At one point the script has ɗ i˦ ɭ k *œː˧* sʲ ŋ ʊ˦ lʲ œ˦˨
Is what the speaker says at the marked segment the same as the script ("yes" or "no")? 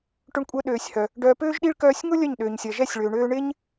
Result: yes